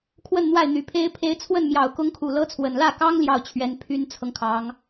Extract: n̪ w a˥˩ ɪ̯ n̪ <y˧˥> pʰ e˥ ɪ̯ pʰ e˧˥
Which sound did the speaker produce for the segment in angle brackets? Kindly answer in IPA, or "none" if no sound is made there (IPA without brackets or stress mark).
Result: y˨˩